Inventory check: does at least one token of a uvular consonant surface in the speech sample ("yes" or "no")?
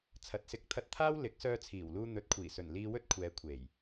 no